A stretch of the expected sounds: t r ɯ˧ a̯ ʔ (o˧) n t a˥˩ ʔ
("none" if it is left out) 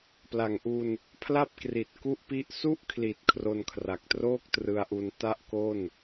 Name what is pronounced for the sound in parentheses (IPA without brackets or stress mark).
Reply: u˧